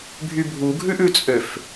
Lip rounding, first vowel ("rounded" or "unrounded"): rounded